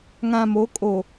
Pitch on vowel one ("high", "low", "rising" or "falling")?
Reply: low